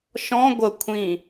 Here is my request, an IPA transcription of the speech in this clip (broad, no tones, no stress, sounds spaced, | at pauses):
ʃ ɔ̃ ɡʷ ə kʷʰ ĩ